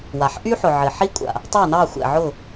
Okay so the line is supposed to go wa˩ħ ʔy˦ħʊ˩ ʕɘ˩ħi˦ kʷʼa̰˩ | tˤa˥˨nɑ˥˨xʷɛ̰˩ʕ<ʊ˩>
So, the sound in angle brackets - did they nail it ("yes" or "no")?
no